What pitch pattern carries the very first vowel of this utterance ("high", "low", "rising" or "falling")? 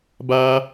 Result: high